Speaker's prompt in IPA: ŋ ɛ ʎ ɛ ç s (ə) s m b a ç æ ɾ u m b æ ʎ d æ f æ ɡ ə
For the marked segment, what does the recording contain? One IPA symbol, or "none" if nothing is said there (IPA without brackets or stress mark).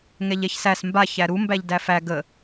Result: æ